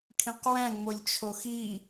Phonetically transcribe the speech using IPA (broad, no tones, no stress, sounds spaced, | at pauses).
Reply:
kʰ ĩ q w æ̃ ŋ͡m o lʲ t͡ʃʰ o x i